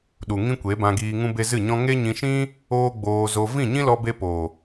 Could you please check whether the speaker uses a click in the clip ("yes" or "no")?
no